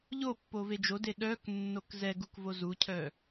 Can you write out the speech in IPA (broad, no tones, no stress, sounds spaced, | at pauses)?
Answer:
ʎ o pː o v e d͡ʒ o d e ɗ œ k nː o k z ɛ ɡ u k v o z u cʰ œ